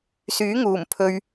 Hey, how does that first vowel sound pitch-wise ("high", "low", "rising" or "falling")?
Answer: rising